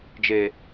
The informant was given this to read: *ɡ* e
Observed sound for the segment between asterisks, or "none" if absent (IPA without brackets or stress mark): d͡ʒ